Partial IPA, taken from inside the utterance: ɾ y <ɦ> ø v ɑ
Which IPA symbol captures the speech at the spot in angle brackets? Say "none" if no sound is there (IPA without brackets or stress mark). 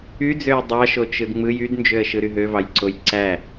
ɦ